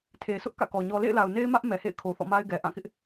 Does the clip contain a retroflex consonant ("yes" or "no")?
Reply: no